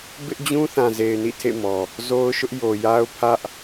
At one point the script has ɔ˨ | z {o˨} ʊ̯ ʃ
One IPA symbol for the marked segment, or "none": o˦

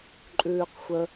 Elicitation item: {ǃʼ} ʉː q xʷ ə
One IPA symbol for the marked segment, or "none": ǃʼ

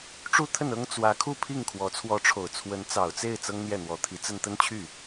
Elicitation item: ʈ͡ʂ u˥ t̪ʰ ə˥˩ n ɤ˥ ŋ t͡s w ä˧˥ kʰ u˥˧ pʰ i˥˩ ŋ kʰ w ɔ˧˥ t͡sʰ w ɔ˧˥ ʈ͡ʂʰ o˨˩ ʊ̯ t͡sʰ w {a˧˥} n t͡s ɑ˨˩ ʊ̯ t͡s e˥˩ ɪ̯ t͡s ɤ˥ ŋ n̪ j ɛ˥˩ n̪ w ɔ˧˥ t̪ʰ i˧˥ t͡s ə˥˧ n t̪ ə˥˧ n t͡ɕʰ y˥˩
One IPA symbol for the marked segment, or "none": ə˧˥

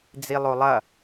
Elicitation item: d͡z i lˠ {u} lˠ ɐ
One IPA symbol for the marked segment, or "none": o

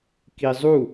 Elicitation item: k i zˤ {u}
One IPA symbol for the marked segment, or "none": u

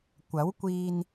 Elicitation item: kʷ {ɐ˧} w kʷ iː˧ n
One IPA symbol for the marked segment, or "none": ɐ˨˥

